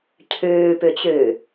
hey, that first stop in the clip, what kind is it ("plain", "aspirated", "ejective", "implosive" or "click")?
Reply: aspirated